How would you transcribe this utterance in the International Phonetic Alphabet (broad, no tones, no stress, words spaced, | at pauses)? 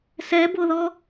sɛboðɔ